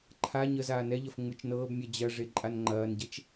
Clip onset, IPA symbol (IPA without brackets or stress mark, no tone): ǃʰ